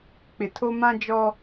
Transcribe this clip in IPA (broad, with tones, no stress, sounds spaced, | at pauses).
k͡p ɪ˨ tʰ o˦ m ã˦ d͡ʒ ɔ˦